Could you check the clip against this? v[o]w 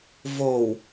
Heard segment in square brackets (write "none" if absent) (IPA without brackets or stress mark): o